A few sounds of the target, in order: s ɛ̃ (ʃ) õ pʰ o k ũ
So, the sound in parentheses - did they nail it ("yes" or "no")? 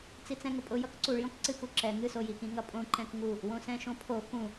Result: yes